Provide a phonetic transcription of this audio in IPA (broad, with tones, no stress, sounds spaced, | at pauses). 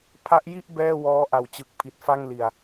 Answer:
pʰ a˦˥ ʔ j i˥˩ ʔ b ɛː˥˩ w ɔː˦˥ ʔ a˨˩ w t͡ɕ ɯ˨˩ k̚ pʰ i˨˩ t̚ f a˥˩ ŋ l i˨˩ a̯